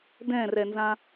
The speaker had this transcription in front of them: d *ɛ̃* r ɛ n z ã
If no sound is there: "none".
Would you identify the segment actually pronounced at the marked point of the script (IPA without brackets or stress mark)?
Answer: ɛ̃